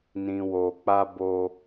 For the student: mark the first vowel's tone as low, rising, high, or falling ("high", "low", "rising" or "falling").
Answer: low